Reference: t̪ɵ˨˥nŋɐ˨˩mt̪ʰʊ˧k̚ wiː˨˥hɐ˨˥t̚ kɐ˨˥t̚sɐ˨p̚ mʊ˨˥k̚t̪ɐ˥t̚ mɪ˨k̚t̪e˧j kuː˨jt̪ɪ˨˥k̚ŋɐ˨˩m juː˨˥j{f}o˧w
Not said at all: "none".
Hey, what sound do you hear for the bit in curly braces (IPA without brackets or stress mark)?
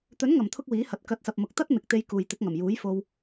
f